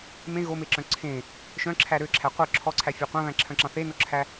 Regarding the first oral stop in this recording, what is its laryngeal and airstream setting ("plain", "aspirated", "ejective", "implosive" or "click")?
click